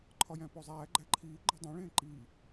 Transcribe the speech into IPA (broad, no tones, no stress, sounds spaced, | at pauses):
ǃʰ ɒ j æ̃ p o zˤ æː ɡ͡ǃ æ ǃʰ iː ɡ͡ǃ ɒ dˤ ẽ ɭ ẽː ǃ iː